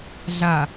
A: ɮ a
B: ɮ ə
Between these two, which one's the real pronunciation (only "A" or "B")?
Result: A